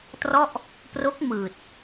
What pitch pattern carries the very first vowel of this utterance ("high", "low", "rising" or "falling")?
falling